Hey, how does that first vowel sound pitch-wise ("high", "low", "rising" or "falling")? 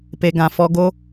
low